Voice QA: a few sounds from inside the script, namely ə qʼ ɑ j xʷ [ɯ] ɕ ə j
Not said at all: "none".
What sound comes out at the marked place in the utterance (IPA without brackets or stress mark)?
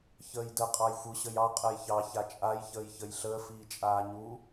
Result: ɯ